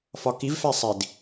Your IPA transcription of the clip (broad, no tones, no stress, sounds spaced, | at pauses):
f ɒ k i v f æ sˤ i d